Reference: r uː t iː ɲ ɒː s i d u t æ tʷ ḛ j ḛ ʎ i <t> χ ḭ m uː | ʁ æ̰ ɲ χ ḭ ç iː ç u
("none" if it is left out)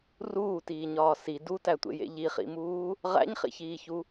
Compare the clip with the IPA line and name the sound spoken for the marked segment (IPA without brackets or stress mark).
none